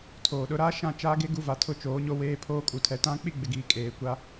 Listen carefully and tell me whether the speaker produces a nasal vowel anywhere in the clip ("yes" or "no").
yes